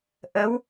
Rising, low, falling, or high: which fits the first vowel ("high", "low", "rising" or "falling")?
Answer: rising